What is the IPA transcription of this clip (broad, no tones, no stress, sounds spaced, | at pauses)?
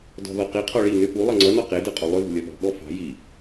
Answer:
d ɔ̤ ð ɔ q i qʰ ɔ ɭ i n ʏ p u lˠ ʌ ŋ͡ǀ ʌ n ɔ q e d ə qʼ ɔ lˠ ʏ ð o̤ lʲ ɔ ɓ ɔ̤ ɠ ɔ f ɑ̤ j i